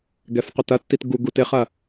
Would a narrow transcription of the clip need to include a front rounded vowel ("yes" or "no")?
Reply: yes